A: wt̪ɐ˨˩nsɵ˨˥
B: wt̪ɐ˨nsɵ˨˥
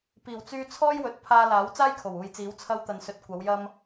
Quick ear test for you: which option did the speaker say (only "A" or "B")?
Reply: B